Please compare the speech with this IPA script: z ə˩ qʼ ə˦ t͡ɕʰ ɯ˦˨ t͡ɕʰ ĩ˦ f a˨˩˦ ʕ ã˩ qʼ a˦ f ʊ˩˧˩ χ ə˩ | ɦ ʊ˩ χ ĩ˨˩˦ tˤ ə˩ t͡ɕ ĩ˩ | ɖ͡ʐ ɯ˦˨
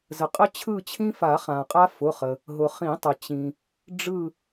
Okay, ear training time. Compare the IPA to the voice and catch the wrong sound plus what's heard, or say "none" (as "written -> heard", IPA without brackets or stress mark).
ʕ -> χ